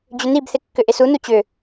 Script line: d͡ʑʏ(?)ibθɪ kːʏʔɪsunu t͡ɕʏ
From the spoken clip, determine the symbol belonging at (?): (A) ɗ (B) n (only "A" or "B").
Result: B